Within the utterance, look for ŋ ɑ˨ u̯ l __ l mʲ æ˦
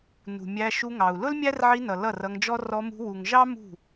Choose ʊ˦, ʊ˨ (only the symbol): ʊ˦